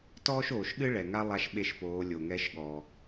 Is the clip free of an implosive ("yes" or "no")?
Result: no